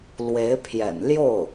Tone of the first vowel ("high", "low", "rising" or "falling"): rising